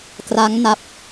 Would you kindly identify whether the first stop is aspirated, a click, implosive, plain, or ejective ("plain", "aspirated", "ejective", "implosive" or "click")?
plain